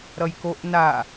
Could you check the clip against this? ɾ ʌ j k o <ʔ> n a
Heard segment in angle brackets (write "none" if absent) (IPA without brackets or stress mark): ʔ